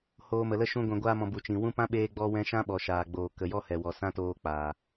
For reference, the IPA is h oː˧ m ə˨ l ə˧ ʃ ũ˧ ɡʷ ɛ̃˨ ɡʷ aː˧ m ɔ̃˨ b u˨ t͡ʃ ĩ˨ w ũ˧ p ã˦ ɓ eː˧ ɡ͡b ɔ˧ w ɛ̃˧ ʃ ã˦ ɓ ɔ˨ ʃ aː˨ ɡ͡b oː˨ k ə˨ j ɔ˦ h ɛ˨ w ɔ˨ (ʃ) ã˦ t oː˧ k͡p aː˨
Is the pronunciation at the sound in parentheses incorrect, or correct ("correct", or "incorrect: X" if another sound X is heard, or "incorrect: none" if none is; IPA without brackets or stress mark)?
incorrect: s